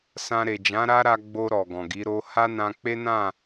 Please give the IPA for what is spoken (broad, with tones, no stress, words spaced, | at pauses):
sã˧ɾe˨ d͡ʒã˨˦ɾa˦ɾa˧ɡ͡bo˧ ɾɔ˨ɡɔ̃˨ɡi˨˦ ɾo˧ ha˦nã˧k͡pe˦nã˦˨